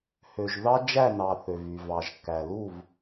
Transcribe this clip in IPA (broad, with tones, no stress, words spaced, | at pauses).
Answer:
hø˨ʒðɑ˦d͡ʒæ˦˨nɑ˨ θø˨vy˨ vɑ˨ʒkːæ˨lu˦˨v